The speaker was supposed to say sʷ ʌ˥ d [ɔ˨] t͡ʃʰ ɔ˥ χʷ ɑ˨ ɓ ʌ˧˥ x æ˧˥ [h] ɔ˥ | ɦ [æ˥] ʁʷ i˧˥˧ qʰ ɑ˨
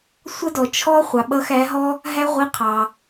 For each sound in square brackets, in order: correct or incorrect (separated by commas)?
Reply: correct, incorrect, correct